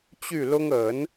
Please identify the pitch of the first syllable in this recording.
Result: falling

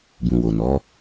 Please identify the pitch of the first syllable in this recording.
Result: low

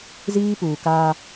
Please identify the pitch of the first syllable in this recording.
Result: high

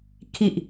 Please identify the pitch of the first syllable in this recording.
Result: low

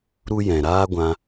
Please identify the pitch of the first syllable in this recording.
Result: high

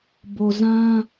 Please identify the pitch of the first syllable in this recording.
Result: low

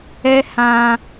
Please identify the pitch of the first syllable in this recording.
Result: high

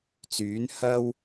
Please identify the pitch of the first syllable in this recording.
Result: rising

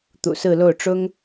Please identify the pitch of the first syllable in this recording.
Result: low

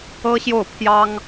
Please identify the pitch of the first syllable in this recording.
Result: high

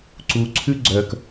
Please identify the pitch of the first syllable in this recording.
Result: rising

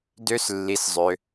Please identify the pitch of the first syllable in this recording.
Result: high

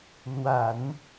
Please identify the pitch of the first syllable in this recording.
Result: low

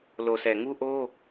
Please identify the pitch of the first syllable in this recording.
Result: low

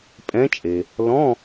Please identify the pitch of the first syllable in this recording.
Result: rising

